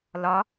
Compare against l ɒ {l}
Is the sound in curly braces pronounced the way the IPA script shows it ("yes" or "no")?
no